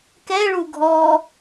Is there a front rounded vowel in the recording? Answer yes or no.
no